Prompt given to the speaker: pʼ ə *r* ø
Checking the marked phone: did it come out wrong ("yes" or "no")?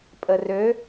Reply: no